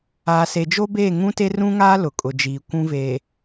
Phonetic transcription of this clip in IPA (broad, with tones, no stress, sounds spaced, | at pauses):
aː˨ s e˨ d͡ʒ o˦ b eː˦˨ ŋ ũ˦ t e˦ r ũ˦ ŋ aː˦ l ʊ˨ kʼ ʊ˨ d͡ʒ iː˨ kʷ ũ˦ v e˨